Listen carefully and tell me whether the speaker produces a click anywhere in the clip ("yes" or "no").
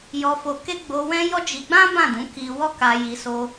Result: no